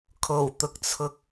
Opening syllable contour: low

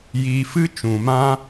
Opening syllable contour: low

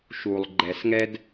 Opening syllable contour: low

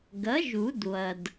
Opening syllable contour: rising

